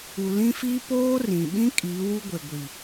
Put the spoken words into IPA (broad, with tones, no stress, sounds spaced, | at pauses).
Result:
u˨ l ĩ˦ f iː˦ p oː˦ r ĩ˨ ɓ ĩ˦ kʼ iː˨˦ w u˦ ɡʷ e˨ ɡʷ i˨